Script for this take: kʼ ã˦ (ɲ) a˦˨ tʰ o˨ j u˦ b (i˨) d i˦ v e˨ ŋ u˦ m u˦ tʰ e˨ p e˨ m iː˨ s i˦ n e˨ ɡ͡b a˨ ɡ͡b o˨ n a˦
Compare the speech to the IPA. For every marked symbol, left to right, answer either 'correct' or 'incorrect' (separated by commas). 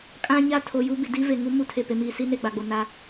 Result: correct, correct